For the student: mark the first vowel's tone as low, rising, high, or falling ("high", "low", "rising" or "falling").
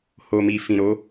low